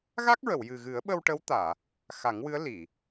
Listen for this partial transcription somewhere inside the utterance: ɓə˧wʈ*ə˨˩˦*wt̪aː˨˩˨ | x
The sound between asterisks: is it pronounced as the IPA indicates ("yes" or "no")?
no